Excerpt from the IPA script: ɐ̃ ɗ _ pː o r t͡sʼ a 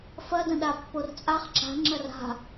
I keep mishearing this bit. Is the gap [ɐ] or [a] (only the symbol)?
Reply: a